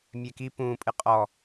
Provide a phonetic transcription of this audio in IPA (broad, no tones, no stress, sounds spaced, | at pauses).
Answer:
mʲ ɛ k i p ũː pʼ ɨ qʼ ɔ